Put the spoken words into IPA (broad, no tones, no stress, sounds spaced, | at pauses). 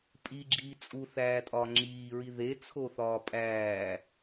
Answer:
pʼ i ɡ͡ǁ iː t͡sʼ u θ æː tʼ ɒ ŋ͡ǁ iː ɹ i ð e t͡sʰ o θ ɒː pʼ æː